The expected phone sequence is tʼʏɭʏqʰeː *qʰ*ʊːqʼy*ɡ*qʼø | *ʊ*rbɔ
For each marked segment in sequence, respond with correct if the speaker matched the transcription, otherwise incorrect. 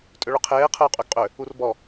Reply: correct, correct, incorrect: u

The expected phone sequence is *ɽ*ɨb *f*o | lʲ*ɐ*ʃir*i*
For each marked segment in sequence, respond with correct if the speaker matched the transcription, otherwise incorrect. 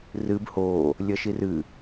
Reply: incorrect: r, incorrect: h, correct, incorrect: ɨ

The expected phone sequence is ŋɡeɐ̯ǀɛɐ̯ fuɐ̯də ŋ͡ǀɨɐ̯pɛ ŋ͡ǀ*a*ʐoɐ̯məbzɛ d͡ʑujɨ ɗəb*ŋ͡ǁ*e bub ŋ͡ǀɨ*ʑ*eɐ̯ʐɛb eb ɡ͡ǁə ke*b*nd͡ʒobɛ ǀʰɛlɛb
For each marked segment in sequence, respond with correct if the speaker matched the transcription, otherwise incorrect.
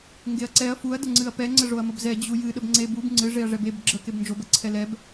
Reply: incorrect: ə, incorrect: ŋ͡ǀ, incorrect: ʐ, correct

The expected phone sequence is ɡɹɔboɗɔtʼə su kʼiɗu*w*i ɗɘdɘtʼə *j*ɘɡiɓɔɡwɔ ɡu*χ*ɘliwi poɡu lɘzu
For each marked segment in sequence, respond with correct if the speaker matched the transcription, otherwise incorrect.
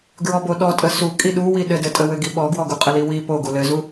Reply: correct, incorrect: w, incorrect: qʼ

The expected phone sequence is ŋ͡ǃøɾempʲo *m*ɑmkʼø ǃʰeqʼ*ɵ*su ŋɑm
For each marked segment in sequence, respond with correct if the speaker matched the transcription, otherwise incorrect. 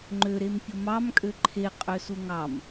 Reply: correct, incorrect: ø

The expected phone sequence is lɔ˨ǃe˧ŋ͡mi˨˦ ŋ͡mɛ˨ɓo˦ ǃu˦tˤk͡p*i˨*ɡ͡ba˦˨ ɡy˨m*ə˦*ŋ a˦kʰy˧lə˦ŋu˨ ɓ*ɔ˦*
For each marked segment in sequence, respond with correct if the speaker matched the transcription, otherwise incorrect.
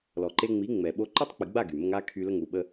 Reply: correct, correct, incorrect: ə˦

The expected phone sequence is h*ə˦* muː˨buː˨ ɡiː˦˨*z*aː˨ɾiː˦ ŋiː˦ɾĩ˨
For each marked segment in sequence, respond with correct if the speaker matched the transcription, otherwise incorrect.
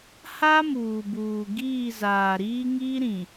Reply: incorrect: a˦, correct

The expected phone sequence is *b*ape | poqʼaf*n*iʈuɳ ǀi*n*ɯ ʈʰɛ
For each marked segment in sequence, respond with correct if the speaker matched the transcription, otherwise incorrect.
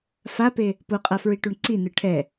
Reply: incorrect: f, incorrect: ɹ, correct

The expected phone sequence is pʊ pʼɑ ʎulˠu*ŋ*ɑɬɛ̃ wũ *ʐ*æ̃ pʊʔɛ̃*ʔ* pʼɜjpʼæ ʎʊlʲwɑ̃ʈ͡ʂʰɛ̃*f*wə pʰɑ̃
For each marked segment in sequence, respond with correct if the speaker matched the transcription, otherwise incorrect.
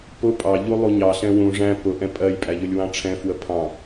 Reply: incorrect: ɲ, correct, incorrect: none, correct

